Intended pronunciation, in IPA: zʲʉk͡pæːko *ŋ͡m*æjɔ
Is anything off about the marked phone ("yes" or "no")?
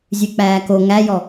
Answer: yes